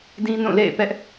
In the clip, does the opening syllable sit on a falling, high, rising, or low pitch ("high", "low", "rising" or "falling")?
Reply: high